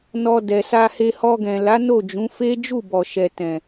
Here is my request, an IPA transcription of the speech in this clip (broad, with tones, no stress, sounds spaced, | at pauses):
n ɔ˧ d ɛ˨ s a˧ h e˧ h ɔ˧ ɡ ɛ̃˨ l a˨˦ n o˦˨ d͡ʒ ũ˨˦ f e˦ d͡ʒ u˦˨ b ɔ˨ ʃ ɛ˨ t ɛ̃˨